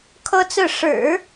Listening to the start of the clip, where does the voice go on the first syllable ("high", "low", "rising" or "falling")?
high